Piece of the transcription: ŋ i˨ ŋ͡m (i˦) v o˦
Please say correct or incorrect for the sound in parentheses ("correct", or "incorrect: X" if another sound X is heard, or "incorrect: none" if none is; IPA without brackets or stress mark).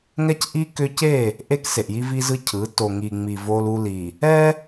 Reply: incorrect: i˨